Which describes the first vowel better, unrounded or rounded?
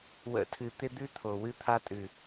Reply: unrounded